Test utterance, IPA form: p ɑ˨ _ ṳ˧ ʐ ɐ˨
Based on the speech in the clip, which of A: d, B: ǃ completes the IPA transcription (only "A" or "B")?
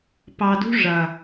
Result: A